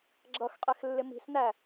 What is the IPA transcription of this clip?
ɡ͡ǁʌxqʼɛx lːɪmi̤snæ

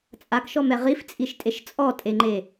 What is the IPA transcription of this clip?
t͡sʼakʃɔmɛ ʁift͡sʼiʃtʼeʃ t͡sʼɔtʼeŋ͡ǃe

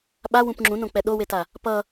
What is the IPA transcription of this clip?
ɓawũp ŋ͡ǁũnõk͡pɛ ɗoweta | pʌ

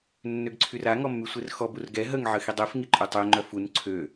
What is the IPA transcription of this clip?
nːøɡǀʰyra ŋɔmːysʷerxɔ burɡɛ ɦəŋ ʕəxidˤøf ŋiǃʼœtˤø ŋ͡ǃœfun ǀʰø

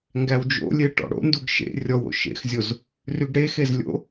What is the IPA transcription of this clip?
ŋɡæwd͡ʒo̰lʲe ʈɔ̰ɽo̰nduɡ ʃḛ rʲɔwo̰ ʃḛxzʲoz | ryɡɽexez lʲo̰

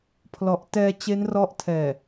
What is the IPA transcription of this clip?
pʰlɔ˨˩ʔtɛː˧ t͡ɕe˦˥nrɔ˦˥ʔ tʰɛː˨˩

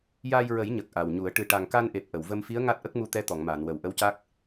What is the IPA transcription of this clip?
jaː˧jɹə˨˩˦jɲə˨˩k̚ ʔa˨˩wɲu˨˩˦ə̯ ʈɨ˨˩ʈa˨˩ŋka˧nʔe˨˩p̚ ʔə˨˩˨wvə˧m fi˧˥ə̯ ŋa˦˥t̚ʔə˦˥k̚mu˧t̪ɛ˧˥ t̪ɔ˨˩˨ŋmaː˨˩˨nwə˨˩˨w ʔə˧˥wca˦˥k̚

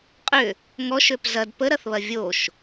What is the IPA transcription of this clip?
qʼʏ | ŋɔʃøp zɐd pəɾɐθβɐ vʲoʃ

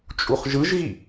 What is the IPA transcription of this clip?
t͡ʃʼuχʒɯʒɣi

